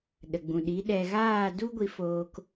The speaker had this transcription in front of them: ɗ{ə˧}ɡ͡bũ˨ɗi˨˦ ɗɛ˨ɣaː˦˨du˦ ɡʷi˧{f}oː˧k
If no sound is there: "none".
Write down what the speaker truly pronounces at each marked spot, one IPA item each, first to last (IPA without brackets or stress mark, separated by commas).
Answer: ə˨, f